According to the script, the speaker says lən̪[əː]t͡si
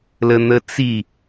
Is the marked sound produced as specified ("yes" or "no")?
no